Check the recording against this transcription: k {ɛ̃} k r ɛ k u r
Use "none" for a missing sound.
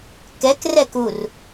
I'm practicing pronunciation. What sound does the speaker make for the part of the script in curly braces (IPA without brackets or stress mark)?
ɛ